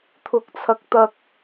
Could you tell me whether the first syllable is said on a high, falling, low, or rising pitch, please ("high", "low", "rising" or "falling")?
high